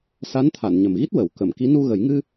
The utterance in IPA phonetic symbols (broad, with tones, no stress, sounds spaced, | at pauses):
s a˧˥ n t̪ʰ a˨˩˨ n ɲ ə˨˩ m ɣ i˦˥ t̚ w ə˨˩˦ w k ə˨˩˨ m k i˧˥ n u˧ ɣ ə˨˩˦ j ŋ ɨ˧